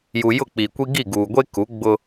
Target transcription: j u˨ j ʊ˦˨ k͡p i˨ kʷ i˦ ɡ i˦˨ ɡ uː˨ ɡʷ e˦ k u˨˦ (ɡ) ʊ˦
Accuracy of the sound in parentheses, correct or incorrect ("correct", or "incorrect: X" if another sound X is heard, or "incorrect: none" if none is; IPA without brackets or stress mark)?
incorrect: ɡ͡b